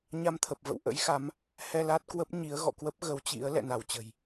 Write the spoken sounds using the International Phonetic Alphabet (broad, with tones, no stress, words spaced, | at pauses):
ɲa˧mt̪ʰə˨˩p̚ və̰˧˨w ʔə̰˧˥jxa˨˦m | hɛ˧la˦˥t̚kwə˦˥p̚ɲi˨˦ə̯ ɣɔ̰˧˨kwə˦˥p̚ ɣə˨˦wt͡ɕḭ˧˥ə̯ lɛ̰˧˨na˧˩wt͡ɕə̤˨˩j